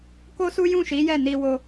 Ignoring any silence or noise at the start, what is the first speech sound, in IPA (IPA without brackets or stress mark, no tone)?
k